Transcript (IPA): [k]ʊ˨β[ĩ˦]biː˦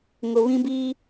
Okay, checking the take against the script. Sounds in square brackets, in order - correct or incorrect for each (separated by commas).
incorrect, correct